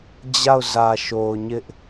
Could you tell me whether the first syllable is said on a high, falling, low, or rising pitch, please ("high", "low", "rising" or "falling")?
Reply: falling